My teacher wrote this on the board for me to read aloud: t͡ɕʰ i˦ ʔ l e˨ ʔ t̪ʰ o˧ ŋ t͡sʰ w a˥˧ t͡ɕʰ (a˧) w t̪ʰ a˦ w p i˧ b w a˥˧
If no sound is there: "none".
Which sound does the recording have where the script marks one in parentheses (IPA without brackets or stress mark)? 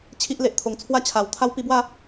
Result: a˨˩